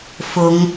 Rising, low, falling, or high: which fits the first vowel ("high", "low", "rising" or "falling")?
rising